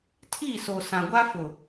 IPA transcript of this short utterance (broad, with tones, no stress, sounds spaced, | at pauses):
tʰ i˦˨ s o˨ s ã˨ ɡʷ a˦ f ʊ˨